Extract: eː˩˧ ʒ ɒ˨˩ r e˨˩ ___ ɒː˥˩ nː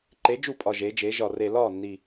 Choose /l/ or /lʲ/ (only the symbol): l